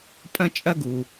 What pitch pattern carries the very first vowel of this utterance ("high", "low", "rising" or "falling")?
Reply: high